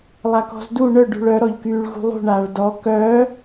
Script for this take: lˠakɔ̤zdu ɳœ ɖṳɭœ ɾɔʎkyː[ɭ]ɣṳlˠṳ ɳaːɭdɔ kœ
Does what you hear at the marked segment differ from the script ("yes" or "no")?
no